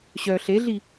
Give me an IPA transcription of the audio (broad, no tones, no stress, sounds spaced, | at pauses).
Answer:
ɕ œ ɬ e ɮ i